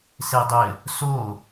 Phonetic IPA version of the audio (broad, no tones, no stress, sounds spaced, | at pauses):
s e dˤ ɘ | s o